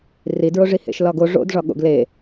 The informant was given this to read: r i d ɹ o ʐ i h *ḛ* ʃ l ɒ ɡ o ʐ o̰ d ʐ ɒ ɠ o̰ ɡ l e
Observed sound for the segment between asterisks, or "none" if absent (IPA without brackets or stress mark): ḛ